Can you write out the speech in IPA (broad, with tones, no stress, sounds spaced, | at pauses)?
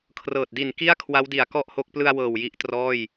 kʰ r ɤː˨˩ t̚ d i˨˩ n k i˥˩ a̯ kʰ w a˦˥ w d i˨˩ a̯ k ɔ˥˩ ʔ h o˦˥ k̚ p l ɯ˧ a̯ w ɤː˨˩ w j i˦˥ ʔ t r ɔː˥˩ j